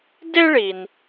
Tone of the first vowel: high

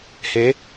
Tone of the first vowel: rising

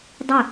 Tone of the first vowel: falling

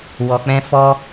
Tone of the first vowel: low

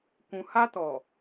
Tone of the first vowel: low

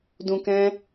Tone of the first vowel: low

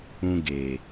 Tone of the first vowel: high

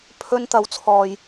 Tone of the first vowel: high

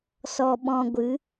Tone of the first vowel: low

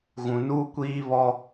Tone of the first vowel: low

